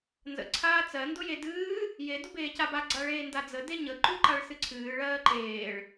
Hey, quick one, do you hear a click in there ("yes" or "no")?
yes